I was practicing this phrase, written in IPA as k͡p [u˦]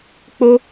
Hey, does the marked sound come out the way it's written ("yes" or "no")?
no